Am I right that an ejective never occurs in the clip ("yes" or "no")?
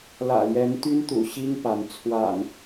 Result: yes